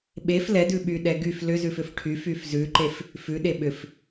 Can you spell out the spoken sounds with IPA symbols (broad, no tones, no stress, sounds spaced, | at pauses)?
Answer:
ɓ e f l ɛ d ʉ ɓ y ɗ ɛ ɡ y f l ʏ z ʉ f ʏ f ʈʰ y f y f z ʉ ǃ e f | f ʉ ɗ e ɓ ʏ f